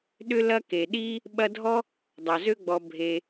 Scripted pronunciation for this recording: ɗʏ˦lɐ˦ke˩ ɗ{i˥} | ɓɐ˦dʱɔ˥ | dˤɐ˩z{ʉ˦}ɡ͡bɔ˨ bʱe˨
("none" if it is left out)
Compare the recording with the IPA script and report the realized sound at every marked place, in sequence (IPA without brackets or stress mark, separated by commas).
i˥, ø˦